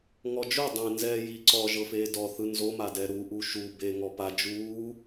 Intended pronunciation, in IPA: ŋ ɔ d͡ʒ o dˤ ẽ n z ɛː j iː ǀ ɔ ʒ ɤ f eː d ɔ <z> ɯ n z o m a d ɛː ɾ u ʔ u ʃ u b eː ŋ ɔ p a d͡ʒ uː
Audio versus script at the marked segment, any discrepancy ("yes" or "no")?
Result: yes